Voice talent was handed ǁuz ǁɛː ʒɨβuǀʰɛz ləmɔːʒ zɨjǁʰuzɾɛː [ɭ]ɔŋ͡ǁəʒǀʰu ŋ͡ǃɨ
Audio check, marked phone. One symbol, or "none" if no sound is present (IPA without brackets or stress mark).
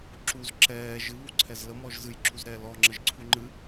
l